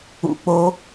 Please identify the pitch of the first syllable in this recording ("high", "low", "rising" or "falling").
high